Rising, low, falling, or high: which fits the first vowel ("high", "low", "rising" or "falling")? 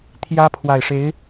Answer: high